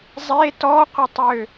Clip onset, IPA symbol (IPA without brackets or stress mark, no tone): zˤ